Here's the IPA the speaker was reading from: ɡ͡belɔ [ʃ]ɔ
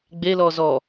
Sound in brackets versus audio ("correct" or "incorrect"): incorrect